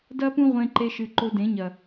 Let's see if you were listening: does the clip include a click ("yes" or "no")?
yes